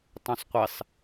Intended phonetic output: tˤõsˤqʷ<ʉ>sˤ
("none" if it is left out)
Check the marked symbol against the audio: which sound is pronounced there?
ɘ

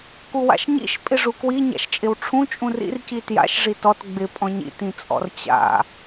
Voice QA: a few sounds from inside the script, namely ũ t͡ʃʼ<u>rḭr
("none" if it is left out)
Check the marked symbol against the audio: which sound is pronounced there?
ũ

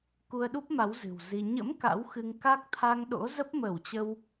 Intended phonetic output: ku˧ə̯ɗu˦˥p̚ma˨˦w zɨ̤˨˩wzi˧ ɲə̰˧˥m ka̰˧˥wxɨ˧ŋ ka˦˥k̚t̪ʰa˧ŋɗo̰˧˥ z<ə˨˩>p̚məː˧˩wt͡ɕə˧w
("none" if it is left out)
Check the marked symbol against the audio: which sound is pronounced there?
ə˦˥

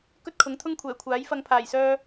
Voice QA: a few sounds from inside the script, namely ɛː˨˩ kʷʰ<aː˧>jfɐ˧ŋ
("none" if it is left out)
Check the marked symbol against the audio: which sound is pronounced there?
aː˨˥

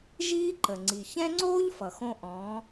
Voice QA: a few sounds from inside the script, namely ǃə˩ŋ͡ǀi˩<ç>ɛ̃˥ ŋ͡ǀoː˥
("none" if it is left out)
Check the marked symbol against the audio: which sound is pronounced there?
ç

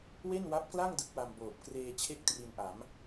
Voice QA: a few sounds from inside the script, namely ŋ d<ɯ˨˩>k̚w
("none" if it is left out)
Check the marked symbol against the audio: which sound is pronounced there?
ɯ˦˥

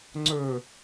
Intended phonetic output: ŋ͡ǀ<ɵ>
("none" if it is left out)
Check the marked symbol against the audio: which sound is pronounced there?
ɵ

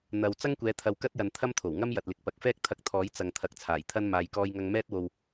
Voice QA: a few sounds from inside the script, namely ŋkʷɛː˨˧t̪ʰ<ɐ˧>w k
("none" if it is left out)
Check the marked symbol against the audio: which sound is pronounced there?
ɐ˨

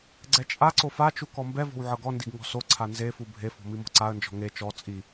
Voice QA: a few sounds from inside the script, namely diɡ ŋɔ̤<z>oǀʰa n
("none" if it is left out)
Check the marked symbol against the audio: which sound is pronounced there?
s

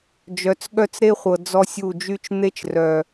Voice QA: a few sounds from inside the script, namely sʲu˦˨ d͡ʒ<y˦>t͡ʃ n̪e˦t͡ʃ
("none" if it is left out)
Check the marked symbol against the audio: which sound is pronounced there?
y˦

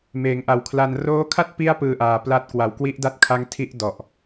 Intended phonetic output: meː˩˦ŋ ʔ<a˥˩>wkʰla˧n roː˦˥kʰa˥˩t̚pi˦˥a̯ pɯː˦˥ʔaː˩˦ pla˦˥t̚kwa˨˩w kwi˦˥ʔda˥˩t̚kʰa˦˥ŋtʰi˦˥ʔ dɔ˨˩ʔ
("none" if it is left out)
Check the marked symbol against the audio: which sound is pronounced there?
a˨˩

